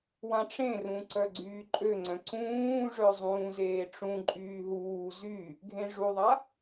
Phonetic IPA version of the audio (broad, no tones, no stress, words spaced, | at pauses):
wãʈ͡ʂẽrũ ǀœɡ͡ǀyːǃʼøŋ͡ǀœ̃ ǀũːʐœ zˤũːzeːʈ͡ʂũǃʼyː ɦuː zy | ɡʱẽʐuðˤa